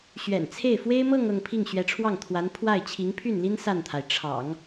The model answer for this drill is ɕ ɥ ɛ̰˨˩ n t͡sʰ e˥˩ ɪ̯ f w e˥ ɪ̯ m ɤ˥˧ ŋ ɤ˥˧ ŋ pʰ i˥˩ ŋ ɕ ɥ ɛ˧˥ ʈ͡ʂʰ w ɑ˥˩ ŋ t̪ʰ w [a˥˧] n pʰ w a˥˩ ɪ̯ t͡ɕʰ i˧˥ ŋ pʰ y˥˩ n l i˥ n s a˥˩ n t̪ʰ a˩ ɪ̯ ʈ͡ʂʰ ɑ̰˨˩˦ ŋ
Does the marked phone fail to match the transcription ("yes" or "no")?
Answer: yes